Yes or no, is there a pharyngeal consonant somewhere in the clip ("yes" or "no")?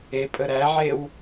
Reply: yes